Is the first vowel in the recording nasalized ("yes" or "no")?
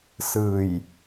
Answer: no